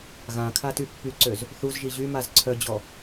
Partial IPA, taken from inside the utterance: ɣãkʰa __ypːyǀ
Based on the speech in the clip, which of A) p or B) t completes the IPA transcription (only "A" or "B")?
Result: B